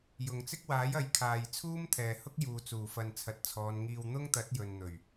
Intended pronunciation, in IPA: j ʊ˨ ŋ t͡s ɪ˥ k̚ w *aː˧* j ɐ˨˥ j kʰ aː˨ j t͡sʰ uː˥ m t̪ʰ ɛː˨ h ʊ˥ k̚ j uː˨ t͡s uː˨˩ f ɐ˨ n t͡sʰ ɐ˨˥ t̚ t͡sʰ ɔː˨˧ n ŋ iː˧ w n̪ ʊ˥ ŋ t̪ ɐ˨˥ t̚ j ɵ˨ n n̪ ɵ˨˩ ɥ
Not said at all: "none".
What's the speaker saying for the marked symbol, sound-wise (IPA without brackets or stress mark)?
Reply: aː˨˥